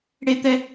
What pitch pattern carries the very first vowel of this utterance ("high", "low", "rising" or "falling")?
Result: high